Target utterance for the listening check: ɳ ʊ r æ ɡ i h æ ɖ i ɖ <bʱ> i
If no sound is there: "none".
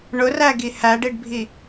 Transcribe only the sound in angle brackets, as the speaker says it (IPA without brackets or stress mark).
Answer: bʱ